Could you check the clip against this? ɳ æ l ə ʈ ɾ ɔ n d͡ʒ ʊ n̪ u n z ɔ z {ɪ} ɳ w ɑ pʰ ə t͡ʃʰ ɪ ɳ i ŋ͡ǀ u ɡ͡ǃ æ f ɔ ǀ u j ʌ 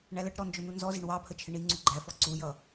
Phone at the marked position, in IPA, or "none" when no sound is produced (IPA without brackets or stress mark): ɪ